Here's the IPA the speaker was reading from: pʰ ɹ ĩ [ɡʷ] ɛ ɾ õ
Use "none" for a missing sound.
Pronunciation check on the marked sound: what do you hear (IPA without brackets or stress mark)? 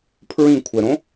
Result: kʷʰ